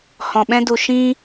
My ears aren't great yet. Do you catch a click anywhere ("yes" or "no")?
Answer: no